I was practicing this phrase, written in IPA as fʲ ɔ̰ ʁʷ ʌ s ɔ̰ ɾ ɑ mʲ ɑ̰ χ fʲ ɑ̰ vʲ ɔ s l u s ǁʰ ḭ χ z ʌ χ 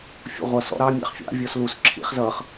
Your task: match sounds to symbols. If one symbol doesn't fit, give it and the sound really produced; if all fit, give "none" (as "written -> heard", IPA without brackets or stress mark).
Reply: none